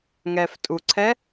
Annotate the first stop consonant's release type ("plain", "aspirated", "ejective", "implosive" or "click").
ejective